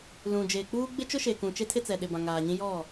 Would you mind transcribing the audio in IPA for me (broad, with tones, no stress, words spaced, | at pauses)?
lũ˨d͡ʒeː˨k͡puː˦ ɡ͡bɪ˦t͡ʃʊ˦ʃe˨kũ˨ t͡ʃe˦tʰɪ˦t͡sɛ˨ ɗɪ˨bã˨ŋaː˨ɲĩ˦ jɔ˦˨